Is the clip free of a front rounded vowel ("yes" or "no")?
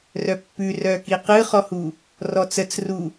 no